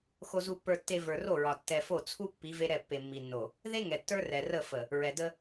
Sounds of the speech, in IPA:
x o˨ z u˨ pː ə˞˨ tː e˨ v ə˞˨ r o˦˨ ɹ ɒ˨ tː ɛ˨ f o˦˨ t͡sʰ u˦ pː i˨˦ v e˦ ɾ ɛ˦˨ pː e˨ mː i˨ nː o˨ | ð e˦ ŋ ɛ˨ tː ə˞˦ r ɛ˨ r ə˦˨ f ə˨ | ɹ ɛ˨ d ə˦

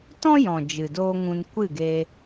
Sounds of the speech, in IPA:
t ɔ̃˦ j ɔ̃˨ d͡ʒ ɨ˨ d oː˦ ŋ ũ˧ n kʷ ɨ˦˨ ɡ e˧

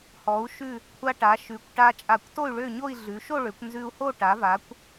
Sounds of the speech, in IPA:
h ɔ˩˧ u̯ ʃ ʉ˧˩ | kʷʰ a˧ ʈ a˩˧ ʃ ʉ˩˧ kʷ ʈ a˧ t͡ʃʼ a˧˩ kʷ t o˥˧ y̯ ɭ ø˥˧ ɲ o˥˧ i̯ ɮ ʉ˩˧ ʃ o˥˧ ɭ ø˩˧ kʷ n z ʉ˧ u̯ h o˥˧ ʈ a˩˧ v a˩˧ kʷ

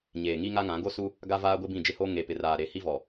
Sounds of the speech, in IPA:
ɲ eː˨ ŋ i˦ ŋ a˦ ŋ ã˨˦ ɡ o˦ s u˦ | ɡ a˦ v aː˦ ɡʷ ɪ˦ b ĩ˦˨ d͡ʒ ɪ˦ h o˦ ŋ e˨ p ɪ˨ r aː˨ ɾ e˨˦ h i˦ v ɔ˨

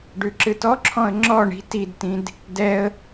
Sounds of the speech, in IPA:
ɖ ʉ ǁ ɨ t ɔ ǁʰ ɔ̃ ə̯ ŋ͡ǁ ɔ ɳ i̤ t i d t ĩ d | d ɛ ə̯

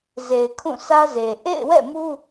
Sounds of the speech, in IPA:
z e˨ ɪ̯ kʰ ũ˦˨ s ä˦ z e˨ ʔ ḛ˦˨ ɪ̯ w ɛ̰˦˨ m u˦

